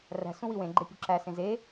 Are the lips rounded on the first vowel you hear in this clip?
no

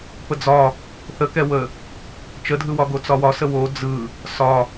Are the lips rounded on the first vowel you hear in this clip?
no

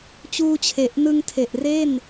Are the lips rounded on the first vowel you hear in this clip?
yes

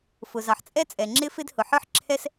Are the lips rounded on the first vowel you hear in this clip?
yes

